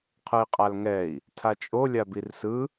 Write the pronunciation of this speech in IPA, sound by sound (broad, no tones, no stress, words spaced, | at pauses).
qʰɯi̯qʼalŋɛi̯ | tʰat͡ʃʼo lʲabirsɯ